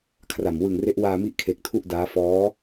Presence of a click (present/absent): absent